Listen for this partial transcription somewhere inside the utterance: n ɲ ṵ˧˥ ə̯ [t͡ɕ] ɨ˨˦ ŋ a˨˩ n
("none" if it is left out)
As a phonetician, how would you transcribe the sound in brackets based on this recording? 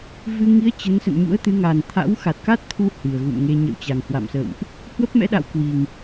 t̪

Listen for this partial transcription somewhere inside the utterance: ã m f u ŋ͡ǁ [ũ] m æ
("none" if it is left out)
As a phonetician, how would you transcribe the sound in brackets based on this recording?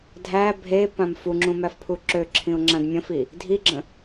ũ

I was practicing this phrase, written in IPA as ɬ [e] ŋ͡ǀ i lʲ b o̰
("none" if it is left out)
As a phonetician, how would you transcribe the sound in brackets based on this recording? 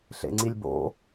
ḛ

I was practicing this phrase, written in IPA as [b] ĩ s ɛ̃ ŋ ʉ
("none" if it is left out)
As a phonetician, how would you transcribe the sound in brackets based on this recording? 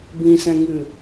b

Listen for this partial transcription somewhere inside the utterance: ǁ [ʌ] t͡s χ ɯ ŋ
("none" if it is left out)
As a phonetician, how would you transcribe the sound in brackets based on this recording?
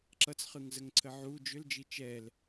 ʌ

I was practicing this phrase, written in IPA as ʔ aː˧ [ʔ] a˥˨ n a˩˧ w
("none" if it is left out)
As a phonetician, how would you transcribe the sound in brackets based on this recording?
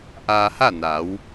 h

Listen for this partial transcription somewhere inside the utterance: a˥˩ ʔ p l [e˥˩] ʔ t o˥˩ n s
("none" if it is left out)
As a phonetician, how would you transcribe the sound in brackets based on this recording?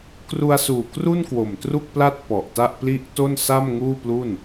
i˥˩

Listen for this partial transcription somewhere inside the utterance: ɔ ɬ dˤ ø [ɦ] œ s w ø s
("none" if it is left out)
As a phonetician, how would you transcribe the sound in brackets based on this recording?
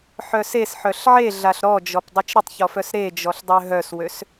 ɦ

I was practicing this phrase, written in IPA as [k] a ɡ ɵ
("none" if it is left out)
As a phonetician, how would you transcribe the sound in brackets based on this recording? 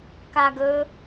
k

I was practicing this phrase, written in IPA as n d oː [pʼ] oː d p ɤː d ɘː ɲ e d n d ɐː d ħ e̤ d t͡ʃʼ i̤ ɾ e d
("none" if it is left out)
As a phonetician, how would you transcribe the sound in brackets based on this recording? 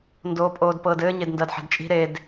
pʼ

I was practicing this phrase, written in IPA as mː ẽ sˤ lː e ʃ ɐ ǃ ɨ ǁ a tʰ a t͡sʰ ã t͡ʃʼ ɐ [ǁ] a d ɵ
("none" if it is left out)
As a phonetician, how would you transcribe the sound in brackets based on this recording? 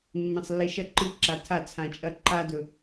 ǃ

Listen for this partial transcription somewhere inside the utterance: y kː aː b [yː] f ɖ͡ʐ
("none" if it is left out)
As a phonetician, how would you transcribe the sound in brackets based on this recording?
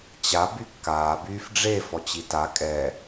yː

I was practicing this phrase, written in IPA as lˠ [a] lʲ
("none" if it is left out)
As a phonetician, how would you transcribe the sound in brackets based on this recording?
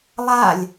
a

